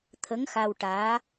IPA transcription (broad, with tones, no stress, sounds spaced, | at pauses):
t̪ʰ ə˧˥ ŋ x a˧ w ʈ aː˧˥